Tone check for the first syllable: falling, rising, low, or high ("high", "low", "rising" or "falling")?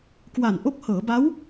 low